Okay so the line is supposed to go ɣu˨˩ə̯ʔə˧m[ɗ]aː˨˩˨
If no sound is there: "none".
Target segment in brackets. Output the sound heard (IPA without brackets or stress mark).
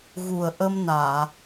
n